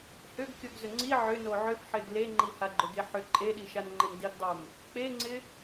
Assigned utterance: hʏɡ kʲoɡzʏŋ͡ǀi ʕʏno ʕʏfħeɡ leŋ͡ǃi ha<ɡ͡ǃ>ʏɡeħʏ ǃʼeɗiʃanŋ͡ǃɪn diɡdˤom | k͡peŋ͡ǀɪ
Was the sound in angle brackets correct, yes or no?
yes